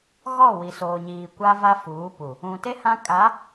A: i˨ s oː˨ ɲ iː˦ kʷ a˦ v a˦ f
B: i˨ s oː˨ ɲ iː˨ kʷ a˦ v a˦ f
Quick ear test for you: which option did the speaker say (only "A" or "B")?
B